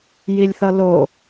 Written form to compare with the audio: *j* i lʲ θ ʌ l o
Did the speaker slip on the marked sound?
no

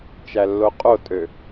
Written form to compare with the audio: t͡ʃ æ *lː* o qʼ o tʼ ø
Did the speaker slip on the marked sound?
no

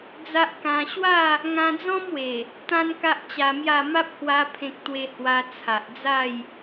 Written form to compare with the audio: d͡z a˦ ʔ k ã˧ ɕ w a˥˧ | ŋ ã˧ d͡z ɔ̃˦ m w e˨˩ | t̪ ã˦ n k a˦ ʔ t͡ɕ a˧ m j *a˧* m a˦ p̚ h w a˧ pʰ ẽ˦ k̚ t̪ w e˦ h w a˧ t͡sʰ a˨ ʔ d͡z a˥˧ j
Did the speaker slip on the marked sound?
yes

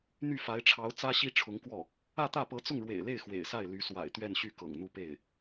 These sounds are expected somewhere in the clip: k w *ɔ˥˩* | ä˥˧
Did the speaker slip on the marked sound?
no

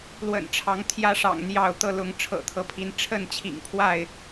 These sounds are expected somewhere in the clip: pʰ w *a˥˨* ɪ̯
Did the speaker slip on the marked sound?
no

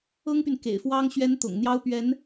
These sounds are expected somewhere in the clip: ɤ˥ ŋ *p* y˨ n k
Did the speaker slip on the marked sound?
no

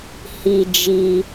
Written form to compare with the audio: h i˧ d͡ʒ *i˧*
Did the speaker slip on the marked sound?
no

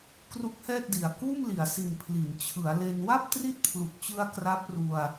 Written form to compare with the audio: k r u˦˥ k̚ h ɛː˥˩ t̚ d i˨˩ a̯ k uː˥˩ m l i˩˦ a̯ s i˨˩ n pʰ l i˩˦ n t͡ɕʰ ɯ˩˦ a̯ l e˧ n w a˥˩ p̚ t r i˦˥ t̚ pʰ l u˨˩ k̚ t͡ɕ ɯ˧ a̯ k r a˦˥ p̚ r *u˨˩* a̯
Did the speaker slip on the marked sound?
yes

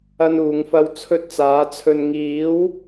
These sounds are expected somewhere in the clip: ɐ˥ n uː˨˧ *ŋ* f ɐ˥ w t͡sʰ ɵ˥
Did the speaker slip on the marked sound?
no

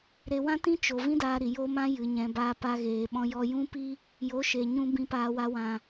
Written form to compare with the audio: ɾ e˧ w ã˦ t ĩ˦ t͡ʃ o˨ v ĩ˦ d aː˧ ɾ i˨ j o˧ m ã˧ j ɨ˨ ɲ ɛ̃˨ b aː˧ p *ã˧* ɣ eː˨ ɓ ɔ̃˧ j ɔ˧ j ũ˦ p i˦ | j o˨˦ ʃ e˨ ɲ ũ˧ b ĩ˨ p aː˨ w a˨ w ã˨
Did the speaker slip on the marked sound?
yes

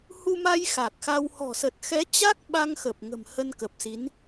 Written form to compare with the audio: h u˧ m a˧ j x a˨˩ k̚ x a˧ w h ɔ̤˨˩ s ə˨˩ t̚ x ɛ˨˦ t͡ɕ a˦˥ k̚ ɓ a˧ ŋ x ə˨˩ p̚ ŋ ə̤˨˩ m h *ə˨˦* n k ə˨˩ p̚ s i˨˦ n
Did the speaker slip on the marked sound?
yes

